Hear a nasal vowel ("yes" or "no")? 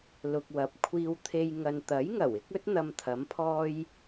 no